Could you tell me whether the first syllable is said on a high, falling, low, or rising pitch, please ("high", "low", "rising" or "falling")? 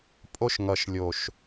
high